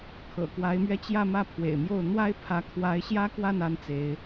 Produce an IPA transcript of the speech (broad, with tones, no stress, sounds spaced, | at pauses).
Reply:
kʰ ɤ̰˨˩ k w a˧˥ ɪ̯ m ɥ ɛ˥˧ t͡ɕ j ä˥˧ m ä˥˩ pʰ w ḛ˨˩ ɪ̯ m j o˥˩ ʊ̯ n̪ w a˥ ɪ̯ pʰ ä˧˥ kʰ w a˧˥ ɪ̯ ɕ j ä˥ k w a˥˩ n a˥ n t͡s e˧˥ ɪ̯